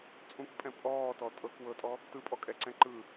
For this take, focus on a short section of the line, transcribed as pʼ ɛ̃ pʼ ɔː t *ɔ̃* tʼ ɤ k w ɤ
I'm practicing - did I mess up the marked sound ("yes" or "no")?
yes